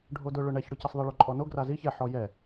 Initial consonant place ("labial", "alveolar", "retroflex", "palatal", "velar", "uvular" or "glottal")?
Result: retroflex